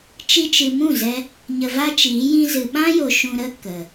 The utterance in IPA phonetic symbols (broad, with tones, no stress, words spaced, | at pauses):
t͡ʃi˧t͡ʃɨ˨mũ˦˨zɛ˧ | ɲə˧va˦t͡ʃiː˨˦ jĩ˧zɨ˨ɓã˦jo˨ ʃũ˧ɾə˦ kə˨